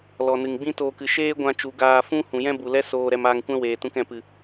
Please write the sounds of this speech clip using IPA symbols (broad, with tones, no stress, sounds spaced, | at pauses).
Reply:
l ɔ˨ n ɨ˨ ŋ ɡ͡b ĩ˦ t oː˧ k ɨ˧ ʃ eː˦ ɡʷ ã˧ t͡ʃ u˨ ɡ aː˧ f ũ˦ h ũ˨ j ɛ̃˦ b u˨ l ɛ˦ s oː˧ ɾ ɛ˧ m aː˧ ŋ kʷ ɛ̃˦ w eː˨ t ũ˧ k ɛ̃˨ p ɨ˨